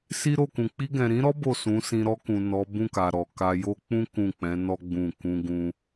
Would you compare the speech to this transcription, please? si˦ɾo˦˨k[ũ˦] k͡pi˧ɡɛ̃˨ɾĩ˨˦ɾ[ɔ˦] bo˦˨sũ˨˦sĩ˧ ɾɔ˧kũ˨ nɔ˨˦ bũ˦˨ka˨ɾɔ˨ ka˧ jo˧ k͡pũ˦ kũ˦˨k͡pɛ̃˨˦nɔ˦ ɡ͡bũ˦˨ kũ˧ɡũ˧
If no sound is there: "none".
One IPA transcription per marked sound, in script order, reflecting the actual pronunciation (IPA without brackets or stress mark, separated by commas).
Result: ũ˨, ɔ˦